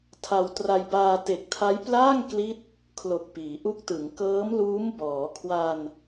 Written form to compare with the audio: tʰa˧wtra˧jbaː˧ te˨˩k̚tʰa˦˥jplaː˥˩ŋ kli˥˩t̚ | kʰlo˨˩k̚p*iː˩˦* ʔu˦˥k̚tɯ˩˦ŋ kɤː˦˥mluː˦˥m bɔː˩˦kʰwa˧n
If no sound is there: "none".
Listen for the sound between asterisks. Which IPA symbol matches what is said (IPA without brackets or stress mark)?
iː˩˦